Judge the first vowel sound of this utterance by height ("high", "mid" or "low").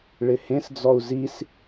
high